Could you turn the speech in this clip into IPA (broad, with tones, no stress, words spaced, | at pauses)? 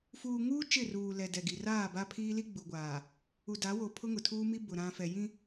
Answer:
fuː˨ŋuː˦ t͡ʃɪ˦˨ruː˨lɛ˨ dɛ˨ɡi˨ raː˦˨ba˦ pʰiː˦li˦ɡ͡bu˨ɡʷaː˨ | u˨da˨˦wo˨ pʰʊ˦ŋʊ˨tʰuː˦ mi˦bʊ˨ ɾã˨ fɛ˨jĩ˦